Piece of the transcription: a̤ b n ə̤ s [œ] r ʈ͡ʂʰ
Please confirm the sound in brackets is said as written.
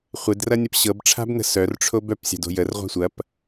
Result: yes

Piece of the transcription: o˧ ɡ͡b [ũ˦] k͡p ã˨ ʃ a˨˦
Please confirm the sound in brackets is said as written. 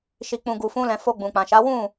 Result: no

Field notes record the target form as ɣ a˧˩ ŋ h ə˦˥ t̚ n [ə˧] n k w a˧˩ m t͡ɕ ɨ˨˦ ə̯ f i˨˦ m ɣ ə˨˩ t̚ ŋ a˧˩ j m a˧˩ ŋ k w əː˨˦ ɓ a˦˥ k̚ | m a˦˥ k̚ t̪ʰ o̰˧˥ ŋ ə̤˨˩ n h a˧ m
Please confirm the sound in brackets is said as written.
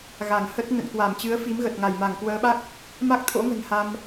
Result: no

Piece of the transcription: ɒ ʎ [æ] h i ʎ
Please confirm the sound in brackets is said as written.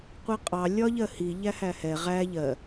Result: no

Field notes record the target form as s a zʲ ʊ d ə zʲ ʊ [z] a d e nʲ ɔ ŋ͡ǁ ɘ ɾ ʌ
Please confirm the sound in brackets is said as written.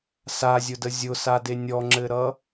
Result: no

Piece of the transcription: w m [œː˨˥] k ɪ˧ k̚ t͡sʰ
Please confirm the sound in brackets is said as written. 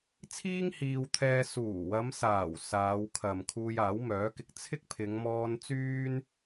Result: yes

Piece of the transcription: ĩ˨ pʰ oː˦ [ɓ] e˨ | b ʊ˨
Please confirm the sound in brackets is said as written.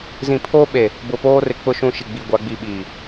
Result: yes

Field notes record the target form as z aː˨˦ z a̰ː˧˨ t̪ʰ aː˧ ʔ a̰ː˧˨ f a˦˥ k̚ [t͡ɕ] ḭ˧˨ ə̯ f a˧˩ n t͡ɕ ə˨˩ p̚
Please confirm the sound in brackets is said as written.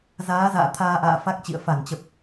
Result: yes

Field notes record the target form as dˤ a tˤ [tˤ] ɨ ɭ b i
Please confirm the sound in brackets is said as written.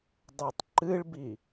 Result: no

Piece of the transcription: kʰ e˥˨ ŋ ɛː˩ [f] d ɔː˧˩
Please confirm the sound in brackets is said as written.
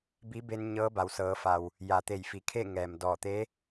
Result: no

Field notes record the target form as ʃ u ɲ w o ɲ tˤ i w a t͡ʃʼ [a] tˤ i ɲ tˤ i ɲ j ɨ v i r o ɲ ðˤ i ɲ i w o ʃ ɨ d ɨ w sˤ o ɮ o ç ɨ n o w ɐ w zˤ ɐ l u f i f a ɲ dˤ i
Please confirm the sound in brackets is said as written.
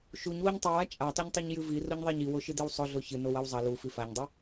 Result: yes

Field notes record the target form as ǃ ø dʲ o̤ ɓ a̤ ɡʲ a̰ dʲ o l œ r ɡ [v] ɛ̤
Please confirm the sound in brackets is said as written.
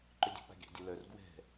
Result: no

